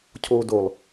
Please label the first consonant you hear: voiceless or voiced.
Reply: voiceless